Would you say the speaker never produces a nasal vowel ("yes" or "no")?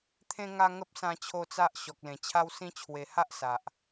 no